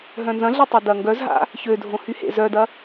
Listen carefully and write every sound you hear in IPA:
ɦ œ̃ n z ɐ̃ ɮ e tˤ ø d ɐ ŋ ɡ œ z ɦ a̰ | ç ø dʱ õ h y h ḛ z œ d ɐ

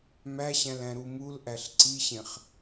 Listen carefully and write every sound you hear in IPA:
m æ ɕ æ̃ l æ̃ ɾ u m u l ʔ æ ɬ ǀ i ɕ ẽ χ

